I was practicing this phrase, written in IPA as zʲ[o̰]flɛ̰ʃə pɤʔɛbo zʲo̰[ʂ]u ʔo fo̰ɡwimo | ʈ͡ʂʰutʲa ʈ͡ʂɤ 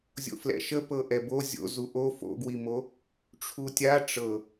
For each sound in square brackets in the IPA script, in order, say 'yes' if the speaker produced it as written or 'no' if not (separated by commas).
yes, no